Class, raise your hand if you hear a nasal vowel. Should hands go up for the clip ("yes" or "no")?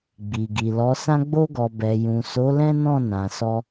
yes